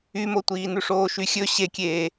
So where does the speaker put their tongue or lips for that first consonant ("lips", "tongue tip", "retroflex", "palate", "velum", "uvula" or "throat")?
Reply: lips